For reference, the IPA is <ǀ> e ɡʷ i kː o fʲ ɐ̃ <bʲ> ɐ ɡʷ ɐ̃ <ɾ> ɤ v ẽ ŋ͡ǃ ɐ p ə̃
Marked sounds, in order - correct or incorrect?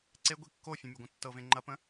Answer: correct, incorrect, incorrect

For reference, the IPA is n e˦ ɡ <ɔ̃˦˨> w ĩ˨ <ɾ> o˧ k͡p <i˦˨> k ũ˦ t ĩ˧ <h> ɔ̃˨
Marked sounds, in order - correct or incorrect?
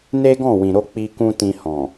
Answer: correct, correct, incorrect, correct

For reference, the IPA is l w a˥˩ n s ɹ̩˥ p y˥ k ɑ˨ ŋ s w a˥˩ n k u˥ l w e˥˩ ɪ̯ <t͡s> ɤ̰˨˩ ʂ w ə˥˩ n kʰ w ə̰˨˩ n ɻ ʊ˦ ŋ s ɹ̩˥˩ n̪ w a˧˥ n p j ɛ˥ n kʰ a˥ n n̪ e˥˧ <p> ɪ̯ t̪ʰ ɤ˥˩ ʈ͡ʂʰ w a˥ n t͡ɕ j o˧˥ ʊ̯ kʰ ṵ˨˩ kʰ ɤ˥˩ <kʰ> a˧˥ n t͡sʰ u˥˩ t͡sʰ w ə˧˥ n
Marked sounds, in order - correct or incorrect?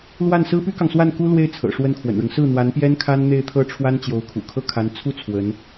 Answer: incorrect, incorrect, correct

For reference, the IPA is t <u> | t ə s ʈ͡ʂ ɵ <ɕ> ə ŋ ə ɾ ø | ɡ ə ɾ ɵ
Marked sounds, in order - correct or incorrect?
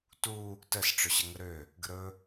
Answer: correct, correct

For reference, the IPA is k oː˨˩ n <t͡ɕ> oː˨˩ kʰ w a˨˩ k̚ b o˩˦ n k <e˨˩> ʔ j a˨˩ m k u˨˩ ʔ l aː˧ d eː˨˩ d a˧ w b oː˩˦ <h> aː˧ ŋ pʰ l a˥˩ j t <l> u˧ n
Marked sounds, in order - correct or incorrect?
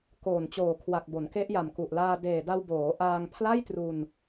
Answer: correct, incorrect, incorrect, incorrect

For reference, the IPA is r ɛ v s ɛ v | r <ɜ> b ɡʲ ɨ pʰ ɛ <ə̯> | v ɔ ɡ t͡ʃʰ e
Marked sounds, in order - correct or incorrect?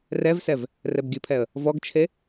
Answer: incorrect, correct

